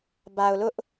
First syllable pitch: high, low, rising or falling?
low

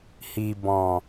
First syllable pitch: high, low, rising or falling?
low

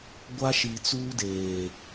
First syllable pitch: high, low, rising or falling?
high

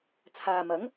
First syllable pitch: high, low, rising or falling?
low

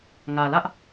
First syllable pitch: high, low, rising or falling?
low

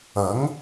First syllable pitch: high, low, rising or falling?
rising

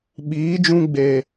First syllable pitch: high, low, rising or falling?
rising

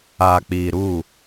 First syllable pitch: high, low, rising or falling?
low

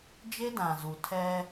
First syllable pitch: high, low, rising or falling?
high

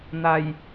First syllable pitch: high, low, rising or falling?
low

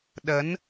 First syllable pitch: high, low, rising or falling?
rising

